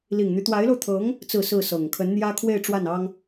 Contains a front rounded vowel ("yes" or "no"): yes